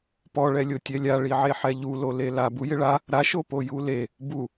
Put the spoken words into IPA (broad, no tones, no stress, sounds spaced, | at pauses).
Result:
p ɔ ɭ ɛ lʲ o tʲ ɛ lʲ a ɭ i ʕ e ħ ɛ ʎ u l o l e l a b u j ɪ ɭ a | ɾ a ʃ o p o j u l e | b u